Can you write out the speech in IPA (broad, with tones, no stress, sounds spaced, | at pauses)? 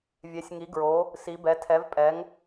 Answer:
vʲ ɛ˨˦ sʲ ŋ i˨˦ ɡ ɹ o˨˦ | s i˨˦ b ɛ˨˦ tʰ ɛ˨˦ v pʼ ɛ˨˦ ŋ